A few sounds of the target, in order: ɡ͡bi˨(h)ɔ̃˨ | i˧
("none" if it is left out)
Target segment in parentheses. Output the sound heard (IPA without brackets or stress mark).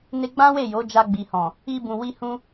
h